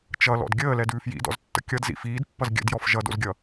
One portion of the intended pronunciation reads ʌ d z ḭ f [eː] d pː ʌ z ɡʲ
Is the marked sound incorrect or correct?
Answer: incorrect